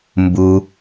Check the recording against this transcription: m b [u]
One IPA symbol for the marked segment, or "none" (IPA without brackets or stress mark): u